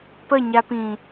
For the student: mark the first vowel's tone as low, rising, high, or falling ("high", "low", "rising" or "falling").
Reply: falling